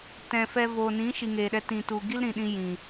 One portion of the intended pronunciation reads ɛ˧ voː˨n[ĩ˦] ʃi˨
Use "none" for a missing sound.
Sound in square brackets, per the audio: ĩ˨˦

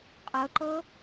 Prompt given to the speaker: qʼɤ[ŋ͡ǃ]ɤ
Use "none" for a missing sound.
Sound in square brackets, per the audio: ǃ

